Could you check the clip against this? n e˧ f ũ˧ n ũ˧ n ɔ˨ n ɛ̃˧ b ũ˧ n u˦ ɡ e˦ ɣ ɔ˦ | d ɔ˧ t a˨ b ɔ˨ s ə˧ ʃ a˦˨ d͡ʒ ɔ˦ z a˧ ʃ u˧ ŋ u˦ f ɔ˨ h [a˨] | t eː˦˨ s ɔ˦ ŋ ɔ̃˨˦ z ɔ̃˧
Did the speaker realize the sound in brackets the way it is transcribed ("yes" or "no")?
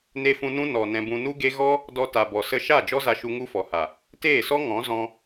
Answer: yes